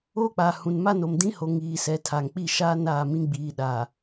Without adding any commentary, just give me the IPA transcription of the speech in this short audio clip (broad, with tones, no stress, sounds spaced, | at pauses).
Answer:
oː˦ k͡p aː˨ h ũ˨ n m a˦ n o˨ m d ĩ˦ h o˨ ŋ iː˨ s ɛ˨ tʰ aː˨ ŋ k͡p i˦˨ ʃ aː˦ n aː˦˨ m ĩ˦ ɡ͡b iː˨ ɗ a˨